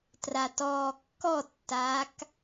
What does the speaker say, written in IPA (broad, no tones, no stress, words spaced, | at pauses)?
tratɔːkːɔtːaːk